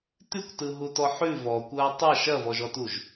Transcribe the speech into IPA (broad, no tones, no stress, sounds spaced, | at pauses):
t ʉ kʷ t ɯ ɦ u t ɔ ħ ʉ v ɔ kʷ ɐː tˤ ɐ ʃ ɐ v ɔ ʒ ɔ t u ʒ